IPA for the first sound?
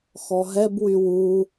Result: x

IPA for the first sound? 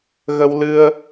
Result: ɣ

